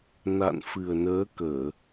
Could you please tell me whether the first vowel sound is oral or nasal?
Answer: oral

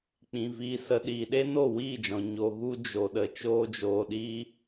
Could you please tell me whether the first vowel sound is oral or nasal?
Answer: nasal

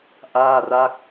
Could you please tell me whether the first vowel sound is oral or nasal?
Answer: oral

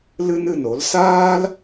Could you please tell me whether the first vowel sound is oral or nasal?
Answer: oral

